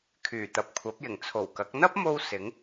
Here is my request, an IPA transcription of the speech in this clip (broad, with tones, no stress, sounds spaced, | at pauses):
kʰ yː˨˩ t̪ ɐ˨ p̚ kʷʰ ɐ˨˥ p̚ j ɪ˨˩ ŋ t͡sʰ o˨˩ w k ɐ˨˥ k̚ n̪ ɐ˥ p̚ m o˧ w s ɪ˨˥ ŋ